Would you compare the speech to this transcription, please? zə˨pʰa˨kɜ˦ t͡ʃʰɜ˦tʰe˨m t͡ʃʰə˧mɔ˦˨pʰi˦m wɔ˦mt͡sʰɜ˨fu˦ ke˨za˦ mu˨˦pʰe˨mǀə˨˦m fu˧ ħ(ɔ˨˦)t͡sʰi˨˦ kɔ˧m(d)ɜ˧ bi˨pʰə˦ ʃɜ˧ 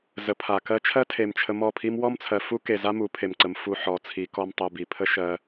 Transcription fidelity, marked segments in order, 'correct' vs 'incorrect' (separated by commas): correct, incorrect